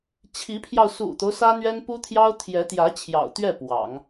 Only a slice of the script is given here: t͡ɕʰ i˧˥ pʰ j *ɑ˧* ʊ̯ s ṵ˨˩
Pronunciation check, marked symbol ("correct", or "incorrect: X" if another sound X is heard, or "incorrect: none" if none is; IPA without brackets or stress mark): correct